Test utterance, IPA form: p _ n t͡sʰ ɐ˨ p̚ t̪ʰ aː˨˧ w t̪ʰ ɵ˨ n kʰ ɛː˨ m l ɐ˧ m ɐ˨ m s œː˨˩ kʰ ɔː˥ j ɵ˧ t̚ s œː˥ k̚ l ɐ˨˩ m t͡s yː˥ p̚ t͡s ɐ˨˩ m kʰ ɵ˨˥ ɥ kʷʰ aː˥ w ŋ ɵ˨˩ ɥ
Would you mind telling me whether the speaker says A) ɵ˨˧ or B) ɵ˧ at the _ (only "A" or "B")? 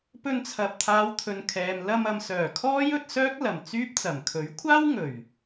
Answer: B